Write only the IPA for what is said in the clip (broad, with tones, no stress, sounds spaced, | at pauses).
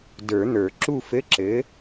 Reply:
d ə˞˨˩˦ n̪ ə˞˨˩˦ ǁ u˥˨ f ɘ˧˥˧ ǁ ɘ˨˥